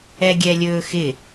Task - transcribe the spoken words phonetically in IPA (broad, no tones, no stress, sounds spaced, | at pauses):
ɛ ɡʲ ɛ lʲ ɵː x ɪ